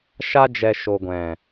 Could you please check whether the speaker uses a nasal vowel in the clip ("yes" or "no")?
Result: yes